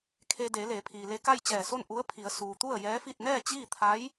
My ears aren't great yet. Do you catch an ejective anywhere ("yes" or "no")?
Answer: no